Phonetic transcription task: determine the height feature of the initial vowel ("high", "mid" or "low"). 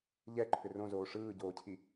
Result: mid